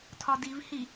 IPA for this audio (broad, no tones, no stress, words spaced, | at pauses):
tʰɒdivhi